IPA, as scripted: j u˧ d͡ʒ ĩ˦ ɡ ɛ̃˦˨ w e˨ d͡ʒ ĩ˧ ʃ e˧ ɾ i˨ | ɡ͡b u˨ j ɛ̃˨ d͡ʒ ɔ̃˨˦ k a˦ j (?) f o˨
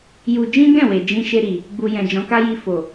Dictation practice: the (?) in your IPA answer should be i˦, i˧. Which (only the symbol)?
i˧